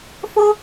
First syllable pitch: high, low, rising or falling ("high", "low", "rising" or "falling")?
high